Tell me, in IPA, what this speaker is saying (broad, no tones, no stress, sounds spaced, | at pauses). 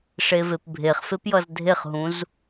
ʂ e v e p bʱ e χ f e p j ʌ z dʱ e χ ɦ ũ z